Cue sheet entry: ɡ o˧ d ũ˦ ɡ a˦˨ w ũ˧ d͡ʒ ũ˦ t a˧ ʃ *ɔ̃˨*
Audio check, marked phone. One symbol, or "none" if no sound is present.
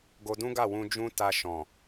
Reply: ɔ̃˨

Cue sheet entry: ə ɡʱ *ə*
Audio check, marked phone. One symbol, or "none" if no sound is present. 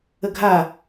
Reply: a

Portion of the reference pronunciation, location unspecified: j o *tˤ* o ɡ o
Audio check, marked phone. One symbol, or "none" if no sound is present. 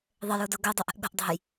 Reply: d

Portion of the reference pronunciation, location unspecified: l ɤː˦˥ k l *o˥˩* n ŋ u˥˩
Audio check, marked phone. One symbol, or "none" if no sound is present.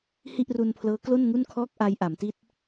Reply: o˥˩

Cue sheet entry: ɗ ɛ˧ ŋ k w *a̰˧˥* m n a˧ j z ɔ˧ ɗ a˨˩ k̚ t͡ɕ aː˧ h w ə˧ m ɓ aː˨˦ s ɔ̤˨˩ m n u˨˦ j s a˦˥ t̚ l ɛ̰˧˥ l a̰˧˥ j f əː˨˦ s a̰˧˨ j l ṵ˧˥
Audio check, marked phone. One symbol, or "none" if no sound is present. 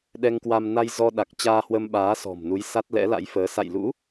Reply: a˧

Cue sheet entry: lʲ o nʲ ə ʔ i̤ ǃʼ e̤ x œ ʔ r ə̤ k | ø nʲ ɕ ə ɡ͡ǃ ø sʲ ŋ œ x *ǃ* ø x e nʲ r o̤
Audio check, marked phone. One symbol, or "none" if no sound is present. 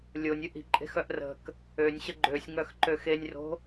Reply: ǃ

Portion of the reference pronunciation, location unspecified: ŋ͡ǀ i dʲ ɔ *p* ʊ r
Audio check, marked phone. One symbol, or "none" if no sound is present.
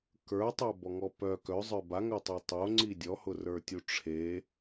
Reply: h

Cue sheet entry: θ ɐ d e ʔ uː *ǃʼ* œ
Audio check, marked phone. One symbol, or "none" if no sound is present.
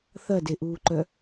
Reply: ǃ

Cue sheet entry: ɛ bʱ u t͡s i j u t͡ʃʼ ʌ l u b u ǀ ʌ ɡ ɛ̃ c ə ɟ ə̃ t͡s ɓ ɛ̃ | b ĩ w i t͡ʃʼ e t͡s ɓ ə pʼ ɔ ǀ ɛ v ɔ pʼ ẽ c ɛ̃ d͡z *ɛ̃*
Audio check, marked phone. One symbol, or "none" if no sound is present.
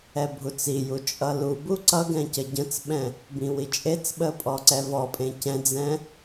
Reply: ɛ̃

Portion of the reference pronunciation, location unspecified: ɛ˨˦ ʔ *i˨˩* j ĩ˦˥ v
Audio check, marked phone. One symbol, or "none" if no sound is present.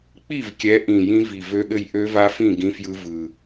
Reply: ĩ˨˩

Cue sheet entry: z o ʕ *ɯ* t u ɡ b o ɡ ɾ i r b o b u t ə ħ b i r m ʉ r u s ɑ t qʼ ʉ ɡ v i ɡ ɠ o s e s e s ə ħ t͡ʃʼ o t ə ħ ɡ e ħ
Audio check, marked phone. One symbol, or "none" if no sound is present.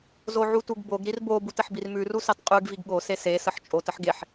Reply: u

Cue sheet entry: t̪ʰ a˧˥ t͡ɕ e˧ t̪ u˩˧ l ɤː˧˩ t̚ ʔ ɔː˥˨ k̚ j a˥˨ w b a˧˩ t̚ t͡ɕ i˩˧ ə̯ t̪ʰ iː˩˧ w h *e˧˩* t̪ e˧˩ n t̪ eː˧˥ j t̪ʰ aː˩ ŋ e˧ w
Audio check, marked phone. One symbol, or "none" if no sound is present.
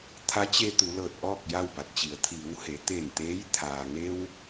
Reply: e˩˧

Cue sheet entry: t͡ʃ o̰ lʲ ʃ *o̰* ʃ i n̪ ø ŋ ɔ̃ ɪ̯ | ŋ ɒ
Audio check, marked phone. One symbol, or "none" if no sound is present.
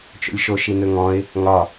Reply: o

